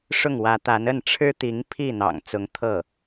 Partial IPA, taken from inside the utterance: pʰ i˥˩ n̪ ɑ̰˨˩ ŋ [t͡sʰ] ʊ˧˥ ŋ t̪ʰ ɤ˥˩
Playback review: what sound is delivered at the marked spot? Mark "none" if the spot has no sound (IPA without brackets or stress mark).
t͡s